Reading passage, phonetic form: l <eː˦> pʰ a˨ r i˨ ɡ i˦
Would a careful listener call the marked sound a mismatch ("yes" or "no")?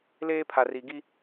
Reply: no